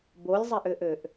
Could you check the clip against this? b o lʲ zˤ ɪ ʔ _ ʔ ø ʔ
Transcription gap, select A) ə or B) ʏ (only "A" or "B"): B